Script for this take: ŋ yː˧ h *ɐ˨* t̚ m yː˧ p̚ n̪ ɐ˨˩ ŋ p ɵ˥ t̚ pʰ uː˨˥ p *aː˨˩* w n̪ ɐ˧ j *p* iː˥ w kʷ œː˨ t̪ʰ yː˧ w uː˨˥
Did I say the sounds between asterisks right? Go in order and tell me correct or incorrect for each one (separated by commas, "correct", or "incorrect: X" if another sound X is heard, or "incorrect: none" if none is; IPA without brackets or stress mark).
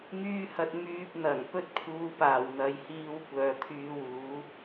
correct, correct, incorrect: h